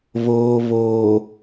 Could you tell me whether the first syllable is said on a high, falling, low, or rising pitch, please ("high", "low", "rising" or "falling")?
low